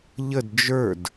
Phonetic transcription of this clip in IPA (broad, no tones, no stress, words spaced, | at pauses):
ʎəd d͡ʒə˞d